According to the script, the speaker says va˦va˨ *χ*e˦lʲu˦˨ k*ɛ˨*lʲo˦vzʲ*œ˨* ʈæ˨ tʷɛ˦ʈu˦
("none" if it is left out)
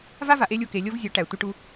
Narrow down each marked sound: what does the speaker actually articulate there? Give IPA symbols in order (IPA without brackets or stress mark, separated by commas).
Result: ʔ, e˨, œ˨˦